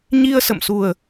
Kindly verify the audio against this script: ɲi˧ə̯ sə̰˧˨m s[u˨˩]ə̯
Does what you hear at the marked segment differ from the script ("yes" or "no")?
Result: no